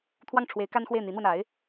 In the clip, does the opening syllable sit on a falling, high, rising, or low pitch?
falling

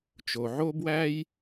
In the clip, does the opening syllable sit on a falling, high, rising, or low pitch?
low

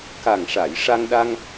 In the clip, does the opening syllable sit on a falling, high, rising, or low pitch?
low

